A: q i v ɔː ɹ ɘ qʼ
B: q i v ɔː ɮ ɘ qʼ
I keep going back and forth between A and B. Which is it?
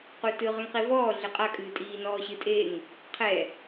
B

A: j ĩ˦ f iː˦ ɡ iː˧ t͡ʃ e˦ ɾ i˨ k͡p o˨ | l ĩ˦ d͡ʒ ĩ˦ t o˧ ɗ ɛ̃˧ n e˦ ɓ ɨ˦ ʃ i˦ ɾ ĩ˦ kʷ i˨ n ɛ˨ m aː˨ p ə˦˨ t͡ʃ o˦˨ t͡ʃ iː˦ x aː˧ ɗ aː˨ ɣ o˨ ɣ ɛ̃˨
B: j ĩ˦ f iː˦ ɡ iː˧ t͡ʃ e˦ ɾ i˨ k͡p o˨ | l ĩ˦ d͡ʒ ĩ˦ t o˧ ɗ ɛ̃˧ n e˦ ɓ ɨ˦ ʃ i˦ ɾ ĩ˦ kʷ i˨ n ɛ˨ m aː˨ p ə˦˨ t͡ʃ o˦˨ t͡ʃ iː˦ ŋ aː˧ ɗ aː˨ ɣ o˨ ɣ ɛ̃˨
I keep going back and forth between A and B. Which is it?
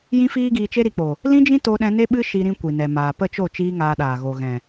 B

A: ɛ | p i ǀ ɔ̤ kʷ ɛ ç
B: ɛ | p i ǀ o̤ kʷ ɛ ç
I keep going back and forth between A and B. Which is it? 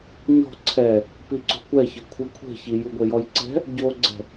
B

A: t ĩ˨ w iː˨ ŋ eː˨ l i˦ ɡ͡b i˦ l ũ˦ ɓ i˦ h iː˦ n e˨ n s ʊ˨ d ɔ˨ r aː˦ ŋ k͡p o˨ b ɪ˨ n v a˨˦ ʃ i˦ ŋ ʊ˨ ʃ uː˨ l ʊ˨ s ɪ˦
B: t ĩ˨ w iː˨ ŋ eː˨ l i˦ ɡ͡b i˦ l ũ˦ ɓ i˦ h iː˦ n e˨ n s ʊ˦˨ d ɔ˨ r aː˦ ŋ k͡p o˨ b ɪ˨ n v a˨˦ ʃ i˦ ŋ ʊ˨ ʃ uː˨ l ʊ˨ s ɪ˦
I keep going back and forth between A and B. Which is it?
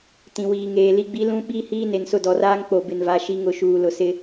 B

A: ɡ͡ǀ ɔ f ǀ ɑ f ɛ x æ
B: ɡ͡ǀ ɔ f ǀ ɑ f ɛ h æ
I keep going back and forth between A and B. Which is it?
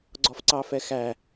A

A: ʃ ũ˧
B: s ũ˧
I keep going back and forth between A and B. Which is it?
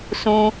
B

